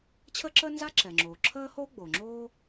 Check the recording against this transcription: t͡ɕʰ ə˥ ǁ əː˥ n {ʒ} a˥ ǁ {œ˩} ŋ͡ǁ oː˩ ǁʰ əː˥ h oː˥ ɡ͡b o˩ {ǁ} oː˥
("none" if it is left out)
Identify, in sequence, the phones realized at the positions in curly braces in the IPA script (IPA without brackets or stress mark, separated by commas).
z, ɛ˩, ŋ͡ǁ